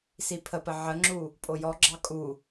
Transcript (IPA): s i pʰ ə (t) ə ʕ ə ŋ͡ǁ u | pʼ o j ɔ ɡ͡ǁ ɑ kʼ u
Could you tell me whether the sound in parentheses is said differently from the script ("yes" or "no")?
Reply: yes